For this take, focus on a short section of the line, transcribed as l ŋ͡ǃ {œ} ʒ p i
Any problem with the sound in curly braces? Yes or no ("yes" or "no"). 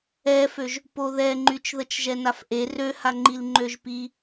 yes